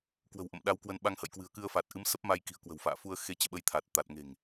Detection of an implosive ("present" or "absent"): present